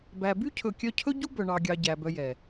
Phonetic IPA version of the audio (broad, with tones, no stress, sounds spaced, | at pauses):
b æ˨ b y˦ cʰ ɵ˨ kʲ œ˧ cʰ ɵ˦ ɟ u˦ b œ˨ ɳ ɑ˨ ɡʲ ɑ˨ ɟ æ˨ b œ˧ j ɛ˨